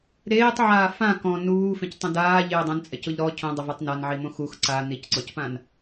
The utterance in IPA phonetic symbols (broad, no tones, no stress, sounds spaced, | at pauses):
ɾ eː tˤ ʕ aː f ã k ɔ̃ n uː f ẽ c tˤ õ d aː ʎ ɪː dˤ õ n t͡sʼ ɛ c ʊ ʎ ɾ ɔ cʰ õ dˤ ʊ v e tˤ n a n ʕ i m õ x u x ǀ a n i c ǀ ɔ c p ã n